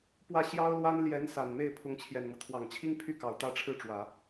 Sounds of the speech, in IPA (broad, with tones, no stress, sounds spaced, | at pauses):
p w ä˥˩ ɕ j ɑ˥ ʊ̯ l w a˥ n l j ɛ˧˥ n s a˨˩ n m e˥˩ ɪ̯ pʰ ʊ˧˥ ŋ t͡ɕʰ j ɛ˨˩ n m ɤ˦ t̪ʰ w ɑ˨˩ ŋ t͡ɕʰ i˥ ŋ pʰ y˥˩ k ɑ˨˩ ʊ̯ t̪ ä˥ ʈ͡ʂʰ ɻ̩˥˩ ʈ͡ʂ w ä˨˩˦